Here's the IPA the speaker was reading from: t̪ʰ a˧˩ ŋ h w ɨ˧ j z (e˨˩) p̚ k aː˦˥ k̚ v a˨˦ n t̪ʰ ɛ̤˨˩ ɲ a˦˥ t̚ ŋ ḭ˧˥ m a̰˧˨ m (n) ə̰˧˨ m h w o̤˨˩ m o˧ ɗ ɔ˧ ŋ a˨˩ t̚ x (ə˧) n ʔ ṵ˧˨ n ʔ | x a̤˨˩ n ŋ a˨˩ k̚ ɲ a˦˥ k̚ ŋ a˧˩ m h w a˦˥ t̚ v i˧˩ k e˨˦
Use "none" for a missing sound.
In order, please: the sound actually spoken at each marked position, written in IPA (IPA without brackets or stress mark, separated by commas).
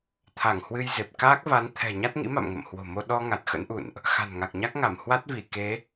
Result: e˨˩, ŋ, ə̰˧˥